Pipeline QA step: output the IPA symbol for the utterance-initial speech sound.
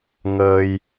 ŋ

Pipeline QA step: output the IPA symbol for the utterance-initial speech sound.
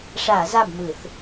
ʂ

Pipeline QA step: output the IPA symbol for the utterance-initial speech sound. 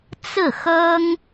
t͡s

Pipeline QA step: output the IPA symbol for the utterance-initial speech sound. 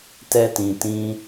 t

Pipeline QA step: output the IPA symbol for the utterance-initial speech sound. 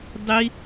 dˤ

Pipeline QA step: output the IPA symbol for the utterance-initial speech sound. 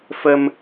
f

